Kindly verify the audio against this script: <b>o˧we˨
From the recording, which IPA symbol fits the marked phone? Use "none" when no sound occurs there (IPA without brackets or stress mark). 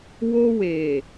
w